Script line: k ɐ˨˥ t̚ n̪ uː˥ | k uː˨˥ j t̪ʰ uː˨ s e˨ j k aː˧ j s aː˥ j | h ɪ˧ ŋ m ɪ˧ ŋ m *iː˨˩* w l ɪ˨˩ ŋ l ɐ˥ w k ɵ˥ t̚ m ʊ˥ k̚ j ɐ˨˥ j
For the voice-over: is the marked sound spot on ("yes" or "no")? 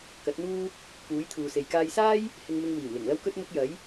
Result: yes